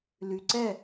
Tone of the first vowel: low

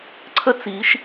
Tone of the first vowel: high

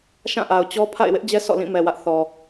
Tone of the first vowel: falling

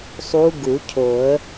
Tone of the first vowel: rising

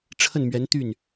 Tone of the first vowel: falling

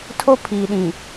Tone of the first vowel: high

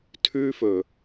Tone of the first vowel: high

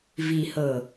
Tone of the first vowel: low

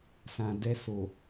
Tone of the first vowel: low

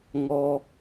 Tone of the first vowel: low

